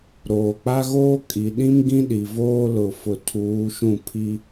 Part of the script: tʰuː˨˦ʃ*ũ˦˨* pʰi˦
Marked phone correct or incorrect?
correct